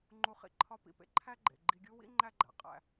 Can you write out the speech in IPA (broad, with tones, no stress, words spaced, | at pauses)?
ŋ͡ǃu˧χḭ˩ ǃʰɒ˧pḭ˩pḛ˧ ǃʰæ˥ɡ͡ǃḛ˩ ɡ͡ǃi˧ɡʲu˥ wḭ˥ ŋ͡ǃæ˥ɡ͡ǃæ̰˩ qʼæ̰˧